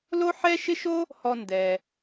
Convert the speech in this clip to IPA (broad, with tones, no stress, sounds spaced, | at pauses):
l o˥ ħ ɛ˥ ʃ ɪ˥ ʃ o˥ | h ɔ˧ n d ɛ˩